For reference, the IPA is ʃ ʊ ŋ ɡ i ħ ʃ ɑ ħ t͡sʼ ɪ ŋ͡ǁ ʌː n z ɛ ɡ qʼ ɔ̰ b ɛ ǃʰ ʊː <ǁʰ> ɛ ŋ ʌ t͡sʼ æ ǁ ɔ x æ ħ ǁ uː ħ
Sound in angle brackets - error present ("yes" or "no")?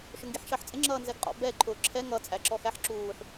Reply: no